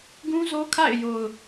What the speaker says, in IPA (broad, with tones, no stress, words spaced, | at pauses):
ɡũ˦zo˦kʰa̰˦˨ɪ̯ jo˨ʊ̯